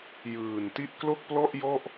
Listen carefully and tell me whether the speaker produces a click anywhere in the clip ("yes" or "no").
no